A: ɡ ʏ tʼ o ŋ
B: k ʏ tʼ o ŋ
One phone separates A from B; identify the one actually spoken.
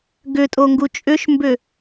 A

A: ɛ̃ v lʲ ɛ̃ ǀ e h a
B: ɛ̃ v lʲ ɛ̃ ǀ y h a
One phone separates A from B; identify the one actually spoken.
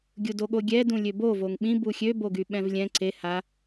A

